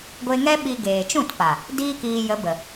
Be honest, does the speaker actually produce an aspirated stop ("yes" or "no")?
no